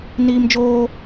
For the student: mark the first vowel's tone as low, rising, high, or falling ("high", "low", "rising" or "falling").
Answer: high